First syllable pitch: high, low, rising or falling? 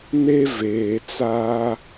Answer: high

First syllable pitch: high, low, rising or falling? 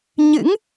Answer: rising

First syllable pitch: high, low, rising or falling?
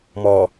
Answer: low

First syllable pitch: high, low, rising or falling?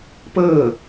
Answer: falling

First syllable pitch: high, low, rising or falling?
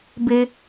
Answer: high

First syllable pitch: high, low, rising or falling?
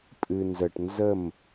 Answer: low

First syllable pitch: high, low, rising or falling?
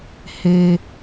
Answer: low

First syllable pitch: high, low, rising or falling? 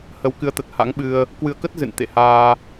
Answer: rising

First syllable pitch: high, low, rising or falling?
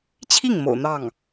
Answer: falling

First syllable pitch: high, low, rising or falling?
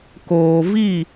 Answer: low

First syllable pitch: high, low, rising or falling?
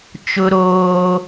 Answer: high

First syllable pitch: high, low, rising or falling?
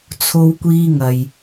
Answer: high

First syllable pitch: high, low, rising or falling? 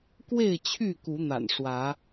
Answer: falling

